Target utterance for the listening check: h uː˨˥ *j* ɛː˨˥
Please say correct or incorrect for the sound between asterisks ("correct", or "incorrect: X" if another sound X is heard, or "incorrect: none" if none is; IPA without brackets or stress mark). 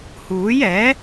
correct